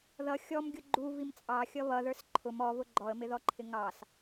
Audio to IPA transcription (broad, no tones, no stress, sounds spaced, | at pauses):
ð ʌ xʲ ɔ m ɡʲ ʊ ɡ͡ǃ u v i m t͡sʼ ɑ xʲ ʌ β ʌ ð ə˞ s ǃʰ ʊ m ɔ v ʊ ɡ͡ǃ ɔ ə̯ m ɪ ð ɔ ǃʰ ɪ ŋ ɑ s